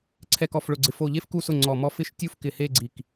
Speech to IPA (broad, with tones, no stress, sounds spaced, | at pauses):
ǀʰ ɛ˧˩ k ɔ˧˩ f ɭ ʊ˧˩ ɡ͡ǀ ɪ˧˩ f o˧˩ ʎ e˥˧ f k u˥˩ s ʊ˥˩ ŋ͡ǀ ɔ˧˩ m ɔ˥˧ f ɪ˥˧ ʃ tʲ u˥˧ f k ɪ˧˩ h e˥˧ ɡ͡ǀ i˧˩ k